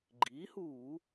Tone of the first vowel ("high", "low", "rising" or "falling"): rising